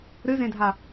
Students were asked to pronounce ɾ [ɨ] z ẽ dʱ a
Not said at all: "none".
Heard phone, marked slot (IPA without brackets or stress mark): ɨ